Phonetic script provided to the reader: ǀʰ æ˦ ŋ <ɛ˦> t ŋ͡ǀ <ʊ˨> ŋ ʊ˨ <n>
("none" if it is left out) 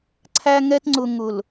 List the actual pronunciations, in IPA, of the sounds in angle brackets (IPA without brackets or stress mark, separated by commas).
ɛ˦, ʊ˨, l